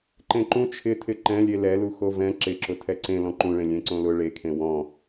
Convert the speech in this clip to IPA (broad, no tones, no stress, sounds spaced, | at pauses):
ǃ ẽ ǃ ũ t͡ʃʰ ɪ tʰ ɪ ǃ ɛ̃ lʲ e l ɛ l u x o v ɛ̃ ǁ ɪ ǁ ʊ tʰ ɛ ǀ ẽ l ɔ̃ ǃ ũ ɭ ẽ lʲ ẽ ǀ õ l ʊ ɭ e kʰ ẽ w ɔ̃